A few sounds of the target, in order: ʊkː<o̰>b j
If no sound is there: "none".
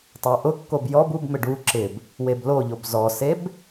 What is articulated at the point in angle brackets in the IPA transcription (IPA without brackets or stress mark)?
o